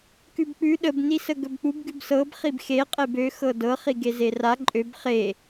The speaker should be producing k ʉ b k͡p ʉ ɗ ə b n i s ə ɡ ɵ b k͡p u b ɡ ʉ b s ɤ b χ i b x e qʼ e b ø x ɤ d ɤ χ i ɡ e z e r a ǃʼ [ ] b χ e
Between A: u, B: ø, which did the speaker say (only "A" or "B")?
B